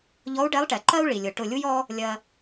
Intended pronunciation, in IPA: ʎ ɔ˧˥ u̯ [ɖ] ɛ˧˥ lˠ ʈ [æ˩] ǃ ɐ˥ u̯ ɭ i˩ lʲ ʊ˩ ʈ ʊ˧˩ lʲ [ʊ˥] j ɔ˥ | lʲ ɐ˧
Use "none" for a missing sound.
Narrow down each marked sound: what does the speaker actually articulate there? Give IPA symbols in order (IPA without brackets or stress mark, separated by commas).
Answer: ɖ, ɛ˩, u˥